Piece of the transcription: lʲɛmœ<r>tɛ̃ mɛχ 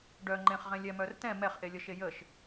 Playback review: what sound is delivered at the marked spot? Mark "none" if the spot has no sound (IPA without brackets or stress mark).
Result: r